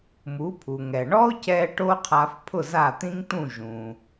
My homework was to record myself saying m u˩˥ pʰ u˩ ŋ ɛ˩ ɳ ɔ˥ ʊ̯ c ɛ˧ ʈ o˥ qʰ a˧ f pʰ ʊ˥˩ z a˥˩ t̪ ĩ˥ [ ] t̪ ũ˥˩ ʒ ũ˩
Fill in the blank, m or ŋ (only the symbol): ŋ